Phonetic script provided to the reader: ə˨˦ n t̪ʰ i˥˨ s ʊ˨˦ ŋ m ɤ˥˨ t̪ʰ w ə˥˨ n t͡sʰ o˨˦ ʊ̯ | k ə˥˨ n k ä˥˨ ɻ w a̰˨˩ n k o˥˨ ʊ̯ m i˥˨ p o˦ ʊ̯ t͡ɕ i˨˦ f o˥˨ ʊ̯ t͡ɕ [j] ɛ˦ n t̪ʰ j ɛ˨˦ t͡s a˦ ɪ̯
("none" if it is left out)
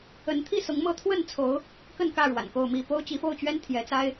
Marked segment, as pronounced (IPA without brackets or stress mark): ɥ